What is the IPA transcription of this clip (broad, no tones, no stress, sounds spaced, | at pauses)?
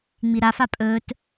ŋ͡m i ɾ a f a pʼ ɵː t